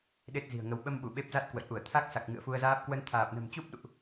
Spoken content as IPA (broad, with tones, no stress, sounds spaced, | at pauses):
ɗ e˦˥ t̚ z i̤˨˩ ə̯ ŋ ə˨˦ w ɓ ə˧ m ɓ u˧˩ ɓ e˦˥ p̚ z a˦˥ t̚ k w ə̰˧˨ j ʔ u˧˩ ə̯ t̪ʰ a˦˥ k̚ s a˨˩ k̚ ŋ ɨ̰˧˨ ə̯ f u˧ ə̯ z aː˦˥ p̚ k w ə˨˦ n t̪ʰ aː˨˩ p̚ n ə̤˨˩ m t͡ɕ u˦˥ p̚ ɗ ṵ˧˨ ʔ